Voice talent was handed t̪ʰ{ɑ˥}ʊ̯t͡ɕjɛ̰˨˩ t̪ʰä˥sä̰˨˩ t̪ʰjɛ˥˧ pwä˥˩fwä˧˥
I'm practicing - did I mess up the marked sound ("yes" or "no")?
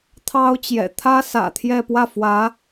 no